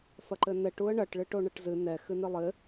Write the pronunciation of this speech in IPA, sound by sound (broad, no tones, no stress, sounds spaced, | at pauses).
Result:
f ɐ ǃ ɘ n ɛ ʈ u ə̯ ɳ ɐ ʈ ɭ ɨ ʈ o ɳ ɐ ʈ z ɨ n ɛ x ɨ n ɨ lˠ ɘ